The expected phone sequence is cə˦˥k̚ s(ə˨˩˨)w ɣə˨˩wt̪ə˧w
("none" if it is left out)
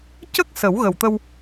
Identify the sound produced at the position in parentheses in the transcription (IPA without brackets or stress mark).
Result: ə˨˩˦